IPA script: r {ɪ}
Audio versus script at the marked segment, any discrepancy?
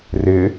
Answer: no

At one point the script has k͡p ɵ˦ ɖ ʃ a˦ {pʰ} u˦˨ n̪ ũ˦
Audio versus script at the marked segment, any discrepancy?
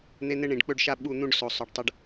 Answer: yes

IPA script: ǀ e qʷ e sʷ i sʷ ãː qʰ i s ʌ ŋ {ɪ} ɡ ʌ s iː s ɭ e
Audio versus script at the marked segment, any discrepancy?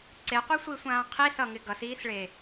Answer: no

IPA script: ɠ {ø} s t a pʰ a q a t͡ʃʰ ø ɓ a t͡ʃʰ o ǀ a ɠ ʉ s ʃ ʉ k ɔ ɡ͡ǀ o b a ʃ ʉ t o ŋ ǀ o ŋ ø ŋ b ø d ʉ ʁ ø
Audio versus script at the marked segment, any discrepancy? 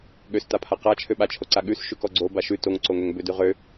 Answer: no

